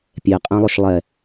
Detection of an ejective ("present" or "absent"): present